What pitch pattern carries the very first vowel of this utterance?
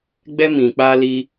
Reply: high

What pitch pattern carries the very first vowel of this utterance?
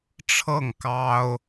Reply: falling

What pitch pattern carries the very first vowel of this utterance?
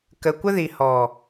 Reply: low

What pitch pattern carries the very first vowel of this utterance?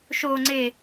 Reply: low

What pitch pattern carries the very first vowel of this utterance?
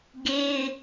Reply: high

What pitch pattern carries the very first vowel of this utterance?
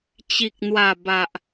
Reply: low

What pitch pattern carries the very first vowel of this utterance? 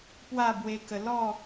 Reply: falling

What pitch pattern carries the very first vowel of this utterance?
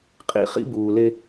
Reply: high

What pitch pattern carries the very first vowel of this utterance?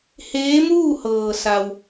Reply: rising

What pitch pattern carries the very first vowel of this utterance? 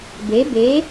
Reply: rising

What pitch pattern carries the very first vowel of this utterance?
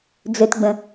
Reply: low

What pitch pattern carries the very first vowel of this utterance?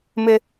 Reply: high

